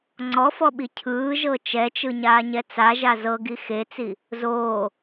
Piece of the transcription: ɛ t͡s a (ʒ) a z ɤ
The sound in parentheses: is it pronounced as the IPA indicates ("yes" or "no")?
yes